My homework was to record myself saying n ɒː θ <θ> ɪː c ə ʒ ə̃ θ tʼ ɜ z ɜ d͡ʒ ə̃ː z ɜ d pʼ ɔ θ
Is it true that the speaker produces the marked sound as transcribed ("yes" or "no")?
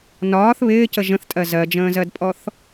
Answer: no